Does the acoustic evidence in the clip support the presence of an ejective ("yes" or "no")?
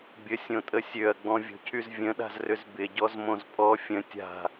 yes